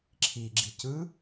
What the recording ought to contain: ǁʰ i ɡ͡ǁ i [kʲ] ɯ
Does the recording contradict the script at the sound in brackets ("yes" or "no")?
yes